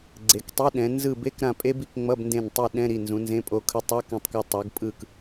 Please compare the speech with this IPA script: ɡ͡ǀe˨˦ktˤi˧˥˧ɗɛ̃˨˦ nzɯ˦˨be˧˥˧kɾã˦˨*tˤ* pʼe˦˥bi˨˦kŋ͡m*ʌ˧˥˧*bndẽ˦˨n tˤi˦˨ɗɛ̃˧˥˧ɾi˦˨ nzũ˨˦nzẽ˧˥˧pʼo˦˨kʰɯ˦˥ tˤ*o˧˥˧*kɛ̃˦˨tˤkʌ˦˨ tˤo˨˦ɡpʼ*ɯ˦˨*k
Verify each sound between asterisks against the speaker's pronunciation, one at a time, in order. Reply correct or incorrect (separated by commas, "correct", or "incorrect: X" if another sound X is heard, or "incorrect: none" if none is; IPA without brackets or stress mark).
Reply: incorrect: none, correct, correct, correct